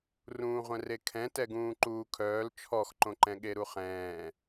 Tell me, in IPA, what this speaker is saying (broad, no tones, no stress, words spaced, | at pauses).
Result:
rũːʁʷɛ̃rekʰɛ̃ tɛɡũːǃuːkʰœːl t͡ʃʰɔxǃõǃɛ̃ ɠeɾuχɛ̃ː